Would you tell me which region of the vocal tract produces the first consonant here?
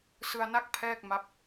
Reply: tongue tip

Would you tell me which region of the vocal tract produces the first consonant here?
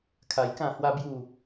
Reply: velum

